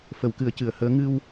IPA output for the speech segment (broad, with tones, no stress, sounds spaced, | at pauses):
f ə˨˩˦ w k ɨ˨˩˦ ə̯ c ɨ˨˩˨ ə̯ h əː˧˥ ŋ ɨ˧ w